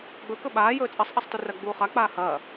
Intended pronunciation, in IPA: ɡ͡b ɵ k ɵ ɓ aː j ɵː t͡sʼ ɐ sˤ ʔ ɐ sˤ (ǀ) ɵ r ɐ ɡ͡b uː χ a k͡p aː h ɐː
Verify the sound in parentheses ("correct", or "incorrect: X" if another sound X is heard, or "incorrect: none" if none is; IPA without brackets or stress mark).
incorrect: t